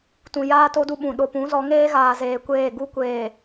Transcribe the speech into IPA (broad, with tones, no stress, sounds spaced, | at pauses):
t ũ˨ j aː˦ t o˦ d u˦ ɓ ũ˨ ɗ o˨ p ũ˨˦ z ɔ˨˦ ŋ eː˦ ɣ aː˨ z eː˨ kʷ eː˦˨ ɡ u˦ kʷ eː˨